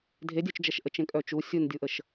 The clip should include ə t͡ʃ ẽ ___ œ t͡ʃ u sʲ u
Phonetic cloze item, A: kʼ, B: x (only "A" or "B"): A